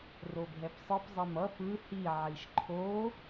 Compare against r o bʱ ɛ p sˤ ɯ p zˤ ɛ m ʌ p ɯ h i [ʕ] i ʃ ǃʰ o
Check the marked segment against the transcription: correct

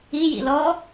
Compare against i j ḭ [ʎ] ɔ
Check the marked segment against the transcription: incorrect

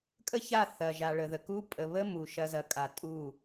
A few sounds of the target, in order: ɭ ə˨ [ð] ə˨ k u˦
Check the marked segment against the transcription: correct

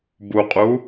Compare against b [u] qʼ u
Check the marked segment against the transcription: correct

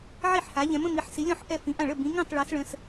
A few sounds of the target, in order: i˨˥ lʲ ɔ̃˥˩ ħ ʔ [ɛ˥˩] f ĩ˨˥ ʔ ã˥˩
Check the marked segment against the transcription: correct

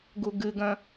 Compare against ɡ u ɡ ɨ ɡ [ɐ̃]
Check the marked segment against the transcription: correct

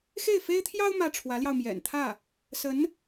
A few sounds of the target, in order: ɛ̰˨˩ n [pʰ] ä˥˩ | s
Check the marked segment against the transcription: incorrect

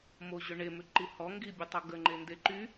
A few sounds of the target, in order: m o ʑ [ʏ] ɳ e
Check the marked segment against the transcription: correct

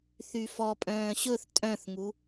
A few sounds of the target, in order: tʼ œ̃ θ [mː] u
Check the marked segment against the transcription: incorrect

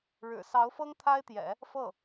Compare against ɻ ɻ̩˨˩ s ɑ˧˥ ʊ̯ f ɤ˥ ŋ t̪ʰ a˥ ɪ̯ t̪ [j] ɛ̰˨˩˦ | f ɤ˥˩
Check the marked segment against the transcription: correct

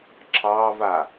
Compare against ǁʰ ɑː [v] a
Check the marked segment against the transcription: correct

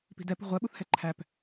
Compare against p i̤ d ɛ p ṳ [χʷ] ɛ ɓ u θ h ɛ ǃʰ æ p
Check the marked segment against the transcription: incorrect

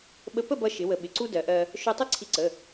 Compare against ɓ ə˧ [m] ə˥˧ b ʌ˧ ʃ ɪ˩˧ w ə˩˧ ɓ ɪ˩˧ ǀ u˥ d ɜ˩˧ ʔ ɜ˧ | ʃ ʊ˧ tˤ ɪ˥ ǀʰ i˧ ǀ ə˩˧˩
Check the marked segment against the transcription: incorrect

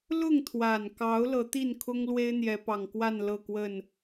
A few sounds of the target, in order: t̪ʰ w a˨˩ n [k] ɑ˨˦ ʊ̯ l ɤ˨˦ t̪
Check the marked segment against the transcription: correct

